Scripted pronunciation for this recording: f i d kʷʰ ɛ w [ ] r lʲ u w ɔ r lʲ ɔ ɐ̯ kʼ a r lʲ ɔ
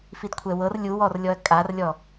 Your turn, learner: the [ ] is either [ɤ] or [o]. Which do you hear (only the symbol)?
ɤ